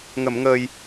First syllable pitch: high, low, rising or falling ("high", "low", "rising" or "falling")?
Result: low